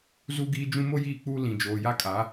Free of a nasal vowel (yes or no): no